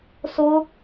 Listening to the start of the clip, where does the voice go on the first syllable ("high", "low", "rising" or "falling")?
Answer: high